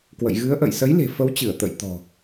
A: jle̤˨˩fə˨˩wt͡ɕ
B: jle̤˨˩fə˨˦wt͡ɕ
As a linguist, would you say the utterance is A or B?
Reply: B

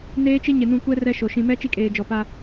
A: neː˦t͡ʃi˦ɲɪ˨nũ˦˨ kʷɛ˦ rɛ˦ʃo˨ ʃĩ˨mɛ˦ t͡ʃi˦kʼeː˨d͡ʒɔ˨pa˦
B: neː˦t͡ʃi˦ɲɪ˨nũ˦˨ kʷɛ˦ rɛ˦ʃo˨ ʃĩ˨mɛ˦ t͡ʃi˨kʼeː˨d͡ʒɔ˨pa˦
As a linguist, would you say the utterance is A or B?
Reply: A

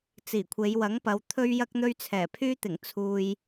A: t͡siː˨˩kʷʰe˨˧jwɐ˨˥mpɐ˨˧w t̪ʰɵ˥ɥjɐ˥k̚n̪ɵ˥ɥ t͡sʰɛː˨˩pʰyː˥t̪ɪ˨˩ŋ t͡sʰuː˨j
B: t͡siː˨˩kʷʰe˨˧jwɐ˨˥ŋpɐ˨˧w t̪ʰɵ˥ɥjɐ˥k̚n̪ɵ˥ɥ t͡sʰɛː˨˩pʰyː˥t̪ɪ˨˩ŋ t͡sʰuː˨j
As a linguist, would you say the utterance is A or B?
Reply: B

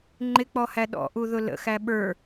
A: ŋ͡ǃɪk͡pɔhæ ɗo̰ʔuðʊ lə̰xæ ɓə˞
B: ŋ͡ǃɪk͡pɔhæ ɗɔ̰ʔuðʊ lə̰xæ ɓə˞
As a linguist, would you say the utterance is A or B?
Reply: B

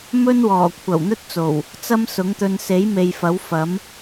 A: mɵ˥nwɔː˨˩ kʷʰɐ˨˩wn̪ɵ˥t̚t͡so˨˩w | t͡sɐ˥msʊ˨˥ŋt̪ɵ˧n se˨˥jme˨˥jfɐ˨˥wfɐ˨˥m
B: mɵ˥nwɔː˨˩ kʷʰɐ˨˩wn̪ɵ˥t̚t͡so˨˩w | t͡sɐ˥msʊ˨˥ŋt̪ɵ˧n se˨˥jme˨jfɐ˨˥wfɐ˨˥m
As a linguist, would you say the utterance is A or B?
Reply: B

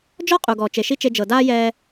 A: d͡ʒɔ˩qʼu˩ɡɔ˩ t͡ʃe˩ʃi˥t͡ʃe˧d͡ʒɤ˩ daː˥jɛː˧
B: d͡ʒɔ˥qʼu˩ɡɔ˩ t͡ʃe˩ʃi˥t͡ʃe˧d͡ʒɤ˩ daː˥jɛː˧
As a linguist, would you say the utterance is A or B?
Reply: B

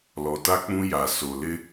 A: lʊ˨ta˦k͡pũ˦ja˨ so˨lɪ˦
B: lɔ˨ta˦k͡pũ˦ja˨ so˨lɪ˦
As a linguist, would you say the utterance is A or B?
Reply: B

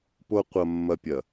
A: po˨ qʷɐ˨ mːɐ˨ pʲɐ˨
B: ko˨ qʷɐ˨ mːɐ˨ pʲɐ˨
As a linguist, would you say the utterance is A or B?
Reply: A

